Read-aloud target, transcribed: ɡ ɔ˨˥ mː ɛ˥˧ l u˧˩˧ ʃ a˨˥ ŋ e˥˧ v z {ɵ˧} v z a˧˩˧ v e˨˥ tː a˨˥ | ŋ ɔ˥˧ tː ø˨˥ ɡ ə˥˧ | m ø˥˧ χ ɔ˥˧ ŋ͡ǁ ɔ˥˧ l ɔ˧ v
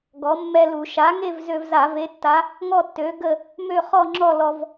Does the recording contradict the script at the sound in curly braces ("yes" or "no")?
yes